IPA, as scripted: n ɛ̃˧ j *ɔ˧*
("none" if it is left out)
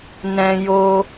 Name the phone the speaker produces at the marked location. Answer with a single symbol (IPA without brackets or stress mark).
o˧